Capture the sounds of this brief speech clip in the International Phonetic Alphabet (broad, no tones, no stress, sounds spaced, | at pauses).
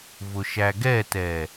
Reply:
v ʊ ʃ æ ɡ ɛ t ɛ